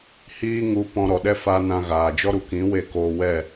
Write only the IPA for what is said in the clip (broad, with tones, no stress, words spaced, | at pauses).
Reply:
hiː˦ŋu˧ pɔ̃˧ɾɔ˨ɗɛ˦ fa˧ nã˧ɣaː˨ d͡ʒɔ˧ɾu˨ kĩ˨˦ we˦˨koː˧wɛ˦˨